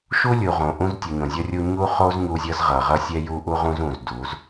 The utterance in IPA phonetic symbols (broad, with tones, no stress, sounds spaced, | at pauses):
ʃ u˦ lʲ u˨ ʁ õ˨ ʔ ũ˦ z tʲ u˨ ɲ õ˨ zʲ ʌ˦ rʲ u˦ ɲ u˦ χ o˦ z ɲ u˦ zʲ ʌ˦ z ʁ ʌ˨ ʁ ʌ˦ sʲ ɛ˦ j u˦ ʔ u˦ ʁ ũ˦ z ũ˨ z d u˨˦ z